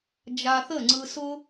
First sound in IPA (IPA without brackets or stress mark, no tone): d͡ʒ